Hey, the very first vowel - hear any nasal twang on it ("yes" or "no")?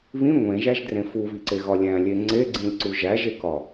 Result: yes